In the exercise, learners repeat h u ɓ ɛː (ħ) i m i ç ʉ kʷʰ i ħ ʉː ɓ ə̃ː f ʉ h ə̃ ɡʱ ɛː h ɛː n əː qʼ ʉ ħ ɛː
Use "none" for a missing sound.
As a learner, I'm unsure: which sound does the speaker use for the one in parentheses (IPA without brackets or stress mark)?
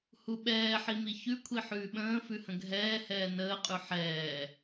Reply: ħ